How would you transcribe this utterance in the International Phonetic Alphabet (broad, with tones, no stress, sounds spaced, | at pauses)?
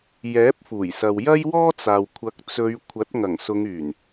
j ɛː˨˥ p̚ f uː˨˩ j s ɐ˨ w j ɐ˥ j w ɔː˥ t͡s aː˨ w kʷʰ ɐ˨˥ k̚ t͡s ɵ˨˧ ɥ kʷʰ ɐ˨˥ t̚ ŋ ɐ˨˩ ŋ s ʊ˨˧ ŋ yː˨˩ n